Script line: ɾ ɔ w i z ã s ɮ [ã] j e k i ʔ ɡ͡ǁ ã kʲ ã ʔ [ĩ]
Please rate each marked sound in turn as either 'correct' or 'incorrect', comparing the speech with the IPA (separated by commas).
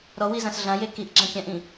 correct, correct